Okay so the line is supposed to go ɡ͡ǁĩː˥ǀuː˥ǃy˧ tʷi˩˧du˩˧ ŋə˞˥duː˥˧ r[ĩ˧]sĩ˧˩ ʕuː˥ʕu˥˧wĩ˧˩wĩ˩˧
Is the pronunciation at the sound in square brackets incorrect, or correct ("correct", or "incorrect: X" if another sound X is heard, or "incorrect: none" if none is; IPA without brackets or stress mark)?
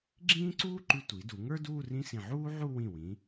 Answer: incorrect: ĩ˥